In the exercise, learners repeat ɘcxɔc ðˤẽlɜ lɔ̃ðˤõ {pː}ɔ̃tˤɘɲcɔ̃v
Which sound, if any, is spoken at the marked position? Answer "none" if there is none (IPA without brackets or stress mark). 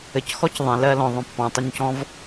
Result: pː